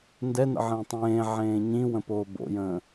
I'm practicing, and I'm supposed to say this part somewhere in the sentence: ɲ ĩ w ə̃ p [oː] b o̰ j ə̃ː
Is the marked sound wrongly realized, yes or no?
no